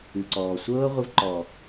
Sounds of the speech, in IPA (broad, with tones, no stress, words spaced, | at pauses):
ɨ˨ǀɔː˨ sʷɤː˦ʁʷɪ˧vǃɔ˨